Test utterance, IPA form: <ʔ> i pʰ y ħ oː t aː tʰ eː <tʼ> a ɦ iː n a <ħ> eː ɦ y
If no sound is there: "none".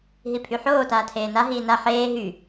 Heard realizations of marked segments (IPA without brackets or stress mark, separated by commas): ɦ, n, ħ